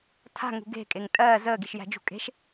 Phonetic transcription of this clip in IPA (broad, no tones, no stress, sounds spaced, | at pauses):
tʰ a̤ ŋ ṳ ɡ e̤ kʼ e ŋ tʼ ɜː z əː ɡ i ʃ j æ̤ d͡ʒ ṳ kʼ e̤ ʃ